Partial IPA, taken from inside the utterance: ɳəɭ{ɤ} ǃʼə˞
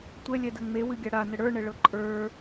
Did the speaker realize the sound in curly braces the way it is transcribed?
yes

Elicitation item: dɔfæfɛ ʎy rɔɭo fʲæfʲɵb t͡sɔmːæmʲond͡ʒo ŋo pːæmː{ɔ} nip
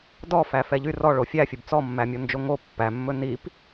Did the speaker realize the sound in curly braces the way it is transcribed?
no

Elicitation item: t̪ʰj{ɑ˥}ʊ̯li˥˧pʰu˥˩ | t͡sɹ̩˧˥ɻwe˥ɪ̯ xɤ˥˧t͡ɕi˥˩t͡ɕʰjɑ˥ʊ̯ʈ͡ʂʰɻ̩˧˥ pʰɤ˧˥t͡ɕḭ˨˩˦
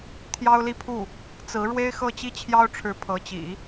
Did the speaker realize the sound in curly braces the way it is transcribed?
yes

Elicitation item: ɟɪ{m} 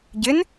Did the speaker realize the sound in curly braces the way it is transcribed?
no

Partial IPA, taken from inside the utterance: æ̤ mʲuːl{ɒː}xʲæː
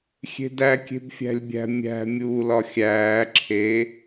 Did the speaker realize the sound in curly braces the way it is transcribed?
no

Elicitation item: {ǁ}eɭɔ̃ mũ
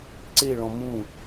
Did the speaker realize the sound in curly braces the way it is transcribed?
no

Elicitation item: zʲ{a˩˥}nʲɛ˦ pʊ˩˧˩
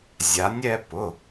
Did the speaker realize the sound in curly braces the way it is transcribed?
yes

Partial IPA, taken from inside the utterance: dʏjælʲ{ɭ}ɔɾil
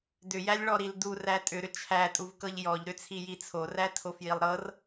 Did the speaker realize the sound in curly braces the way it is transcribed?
yes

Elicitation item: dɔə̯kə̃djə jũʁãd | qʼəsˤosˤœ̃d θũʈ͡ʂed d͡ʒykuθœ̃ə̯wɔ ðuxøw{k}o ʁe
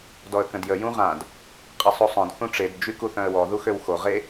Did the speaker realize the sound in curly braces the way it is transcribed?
no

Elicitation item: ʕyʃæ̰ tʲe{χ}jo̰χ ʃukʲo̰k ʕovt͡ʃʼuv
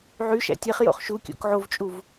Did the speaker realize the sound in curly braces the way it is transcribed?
yes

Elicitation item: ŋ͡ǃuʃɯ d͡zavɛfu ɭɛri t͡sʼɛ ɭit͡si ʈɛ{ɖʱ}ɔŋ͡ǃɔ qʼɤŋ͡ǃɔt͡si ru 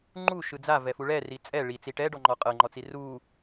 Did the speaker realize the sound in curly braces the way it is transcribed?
no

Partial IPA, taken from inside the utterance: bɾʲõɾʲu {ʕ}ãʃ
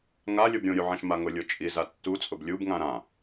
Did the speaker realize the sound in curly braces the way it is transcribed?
yes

